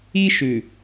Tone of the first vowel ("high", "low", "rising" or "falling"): high